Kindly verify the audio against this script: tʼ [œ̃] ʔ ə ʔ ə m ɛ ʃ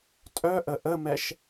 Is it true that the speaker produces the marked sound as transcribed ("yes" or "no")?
no